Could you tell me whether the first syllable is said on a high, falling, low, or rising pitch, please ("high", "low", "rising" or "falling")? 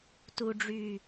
low